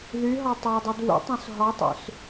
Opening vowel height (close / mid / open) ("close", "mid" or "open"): close